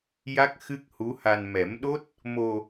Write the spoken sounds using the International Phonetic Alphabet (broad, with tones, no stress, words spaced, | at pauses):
ja˦˥k̚xɨ˦˥k̚hu˧˥ha˧n mɛ˨˩˦mɗo˦˥t̚ | mo˧